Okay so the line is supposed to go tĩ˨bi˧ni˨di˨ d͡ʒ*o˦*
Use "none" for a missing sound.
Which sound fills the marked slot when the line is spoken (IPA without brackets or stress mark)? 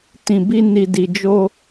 o˧